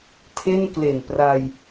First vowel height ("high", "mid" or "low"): mid